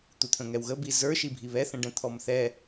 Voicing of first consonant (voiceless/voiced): voiceless